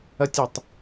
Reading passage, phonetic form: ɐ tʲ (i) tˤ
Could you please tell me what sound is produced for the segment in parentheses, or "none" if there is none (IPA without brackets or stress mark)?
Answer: i